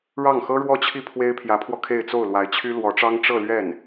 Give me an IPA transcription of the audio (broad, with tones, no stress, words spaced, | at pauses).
ɻɑ˥˩ŋxɤ˥ɻwɔ˥t͡ɕʰi˥˩ pʰwe˥ɪ̯pʰjä˧˥pʰwɔ˧ kʰe˥˧ɪ̯t͡so˥˩ʊ̯lwa˧˥ɪ̯t͡ɕʰy˥ lwɔ˧˥ʈ͡ʂɑ˥ŋ ʈ͡ʂɤ˥˧lɥɛ˥˩n